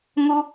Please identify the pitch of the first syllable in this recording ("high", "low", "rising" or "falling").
high